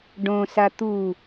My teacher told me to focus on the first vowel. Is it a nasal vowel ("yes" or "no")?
yes